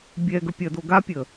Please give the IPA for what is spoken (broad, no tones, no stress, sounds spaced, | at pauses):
bʲ ɛ ɡ ə pʲ ɐ d o ɡ a pʲ ə